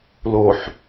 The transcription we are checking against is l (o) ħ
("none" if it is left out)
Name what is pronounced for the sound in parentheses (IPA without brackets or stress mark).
o